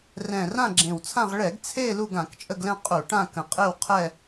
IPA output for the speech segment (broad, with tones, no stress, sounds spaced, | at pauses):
r ɛ̃˨˩ r ã˦˨ ɡ͡ǁ ẽ˨˩ w t͡sʰ ã˦˨ ʁ ɭ ɛ˧˩˧ ɡ t͡sʰ e˦˨ l u˦˨ ɡ ã˧˩˧ k t͡ʃʼ ə˦˨ ɡ l ɛ̃˦˨ qʼ u˧˩˧ ʈ ã˦˨ k ə̃˨˩ qʼ e˦˨ w qʰ ɛ˦˨